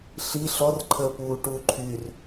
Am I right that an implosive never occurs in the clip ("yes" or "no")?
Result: yes